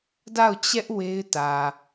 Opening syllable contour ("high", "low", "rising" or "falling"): falling